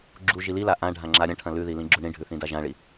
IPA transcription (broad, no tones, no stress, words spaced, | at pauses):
ɡ͡ǁu ʒilila ʔã ɖʱãŋ͡ǁaɾʲɐ̃ʈʰɐ̃ lʉði lĩɡ͡ǁuɳĩɖʱʉ θĩdaʒãɭi